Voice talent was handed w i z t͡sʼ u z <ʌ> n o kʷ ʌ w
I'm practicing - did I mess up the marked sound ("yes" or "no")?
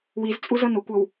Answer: no